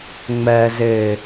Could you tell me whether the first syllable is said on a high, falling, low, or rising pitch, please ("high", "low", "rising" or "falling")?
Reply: low